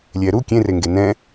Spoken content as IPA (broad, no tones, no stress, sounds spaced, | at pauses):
lʲ ɛː ɾ u kʲ ẽ r e ŋ ɡ e n ɛ̃